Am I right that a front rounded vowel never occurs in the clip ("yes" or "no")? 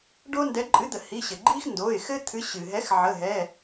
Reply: yes